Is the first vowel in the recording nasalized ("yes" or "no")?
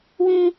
yes